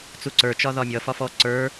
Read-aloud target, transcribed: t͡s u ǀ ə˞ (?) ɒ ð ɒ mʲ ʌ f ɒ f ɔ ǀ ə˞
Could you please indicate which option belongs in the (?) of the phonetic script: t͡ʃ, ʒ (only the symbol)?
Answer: t͡ʃ